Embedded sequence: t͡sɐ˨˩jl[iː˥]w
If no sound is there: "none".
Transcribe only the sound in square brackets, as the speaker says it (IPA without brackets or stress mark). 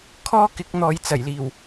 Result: iː˨˩